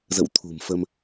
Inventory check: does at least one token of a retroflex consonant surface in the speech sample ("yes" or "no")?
no